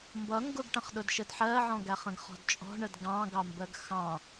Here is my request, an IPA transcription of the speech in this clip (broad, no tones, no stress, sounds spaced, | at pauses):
m b ʌ ŋ ɡ ʊ ɡ ʈ ə̃ χ ɗ ʊ d ʃ ə d ħ ɜ ʕ ɔ̃ ɡ æ χ ə̃ ɡ χ ɔ̤ d t͡ʃʼ ɔ̤ ɳ ə d ɡ ɑ̃ ɡ ɑ m b ɜ ɡ x ɑ̃